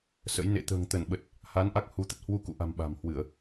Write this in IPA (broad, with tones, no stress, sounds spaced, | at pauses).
s ə̰˧˥ j n ḛ˧˨ t̪ ə̤ː˨˩ ŋ t̪ ə˧˩ n ɓ ə˨˩ t̚ | h a˨˦ n ʔ a˦˥ k̚ h u˨˦ t̪ ə˦˥ t̚ h w u˧ k ṵ˧˨ ʔ a̤˨˩ m ɓ a̤˨˩ m h w ɨ˧˩˨ ə̯